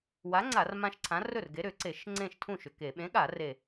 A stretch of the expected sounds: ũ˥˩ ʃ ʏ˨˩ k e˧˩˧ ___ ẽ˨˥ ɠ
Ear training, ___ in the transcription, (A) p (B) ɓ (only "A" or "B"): B